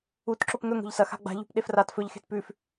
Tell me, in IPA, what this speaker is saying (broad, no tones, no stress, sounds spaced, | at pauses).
u t ǁ o p ŋ ɵ ŋ o̤ ʎ s ɐ x a̤ ɡ͡b a̤ ʎ ṳ p ɗ e f r a t f ɵ ʎ x e̤ t p ʉ f